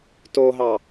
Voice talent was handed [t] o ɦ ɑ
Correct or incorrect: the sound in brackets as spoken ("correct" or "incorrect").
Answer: correct